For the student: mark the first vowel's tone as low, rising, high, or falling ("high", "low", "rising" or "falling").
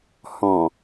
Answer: low